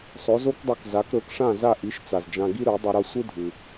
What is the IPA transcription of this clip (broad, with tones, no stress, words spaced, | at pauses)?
sˤɵ˩˥zo˥kdˤɵ˧kza˩˥k ɾɵ˩˥kʂã˥˩za˥˩ ʔi˩˥ʃ t͡sa˩zd͡ʒã˧ ɡi˥ɾø˩˥ dˤɵ˧ɾʌ˥˩ sʷɯ˥dʱɯ˩